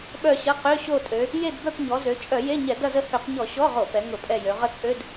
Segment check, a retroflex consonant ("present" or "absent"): absent